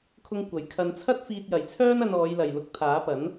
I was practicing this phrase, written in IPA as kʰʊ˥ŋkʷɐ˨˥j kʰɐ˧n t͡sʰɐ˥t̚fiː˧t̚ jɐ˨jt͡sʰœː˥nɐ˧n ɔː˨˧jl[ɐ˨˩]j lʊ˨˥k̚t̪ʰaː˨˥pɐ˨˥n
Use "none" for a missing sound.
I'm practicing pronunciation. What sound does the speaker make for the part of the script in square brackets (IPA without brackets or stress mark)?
ɐ˨